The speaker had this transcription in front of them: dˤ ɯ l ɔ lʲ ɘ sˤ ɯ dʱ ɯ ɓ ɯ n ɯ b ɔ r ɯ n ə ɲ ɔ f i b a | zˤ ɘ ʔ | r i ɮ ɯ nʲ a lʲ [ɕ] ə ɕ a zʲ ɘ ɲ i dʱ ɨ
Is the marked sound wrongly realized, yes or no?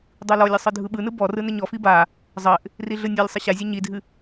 yes